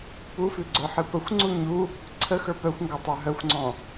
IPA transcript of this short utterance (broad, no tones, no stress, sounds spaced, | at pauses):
p u f ʉ ɡ͡ǀ ə˞ ħ ɨ p ə xʷ ŋ͡ǀ u ɲ u | ǀʰ ə x ə˞ p œ xʷ ŋ ɡ ɔ tˤ ə˞ ɦ œ xʷ ŋ͡ǀ ɔ̃